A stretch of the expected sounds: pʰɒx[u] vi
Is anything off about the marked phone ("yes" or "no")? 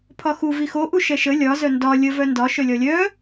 no